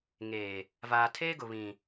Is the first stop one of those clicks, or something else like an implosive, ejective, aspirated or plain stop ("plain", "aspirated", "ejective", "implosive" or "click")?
aspirated